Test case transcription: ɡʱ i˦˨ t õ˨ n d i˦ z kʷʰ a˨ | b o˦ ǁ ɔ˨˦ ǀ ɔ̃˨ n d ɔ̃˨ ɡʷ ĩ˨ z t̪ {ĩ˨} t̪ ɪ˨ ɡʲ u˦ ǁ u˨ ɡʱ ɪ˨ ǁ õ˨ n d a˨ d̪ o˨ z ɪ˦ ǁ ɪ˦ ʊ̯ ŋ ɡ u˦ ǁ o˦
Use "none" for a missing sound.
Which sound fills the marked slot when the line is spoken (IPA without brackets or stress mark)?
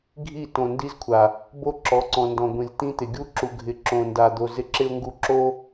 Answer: ĩ˦